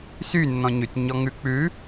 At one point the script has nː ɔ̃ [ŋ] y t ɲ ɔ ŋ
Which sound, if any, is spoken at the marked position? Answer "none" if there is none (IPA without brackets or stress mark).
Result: ɲ